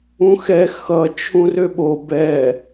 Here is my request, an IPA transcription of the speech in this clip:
ũ x ɛ x ʌ t͡ʃʰ ũ r ø ɓ o b ɛ

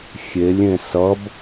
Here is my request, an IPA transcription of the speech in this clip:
xʲ e lʲ ẽ s ʌ b

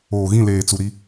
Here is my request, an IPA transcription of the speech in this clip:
oː˨ ɣ ĩ˦˨ l eː˨ t͡s u˨ ɾ i˦

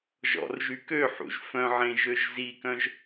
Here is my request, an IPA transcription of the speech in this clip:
ʒ ɔ̰ r ʒ y k ø ħ ṵ ʒ f œ̃ ʕ ẽ ʒ ø ʒ z i k œ̃ ʒ

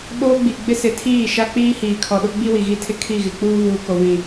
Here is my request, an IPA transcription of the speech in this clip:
ɓ oː˦ ɡ͡b i˨ ɡ͡b ɪ˦ s ɪ˨˦ tʰ iː˦˨ ʃ a˦ k͡p iː˦ h iː˨ kʰ ɔ˨ ɗ ʊ˦ ɡ͡b i˦ w i˨ ɣ i˦ tʰ ɪ˦ kʰ i˦˨ ɣ ɪ˨ k͡p uː˦ v uː˨ k o˨ v ĩ˨

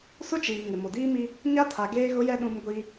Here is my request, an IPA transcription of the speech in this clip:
s ʊ˦ t͡ʃ iː˨ ŋ ɪ˨ m o˨ d iː˦ m i˦ | ɲ a˦ tʰ a˨ ɡ eː˦ ɣ ʊ˦ j ɛ˦ ɗ ũ˦ m ɡʷ i˦

